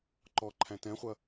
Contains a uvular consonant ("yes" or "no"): yes